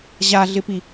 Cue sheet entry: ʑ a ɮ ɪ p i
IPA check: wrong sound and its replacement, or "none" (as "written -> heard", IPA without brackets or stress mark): none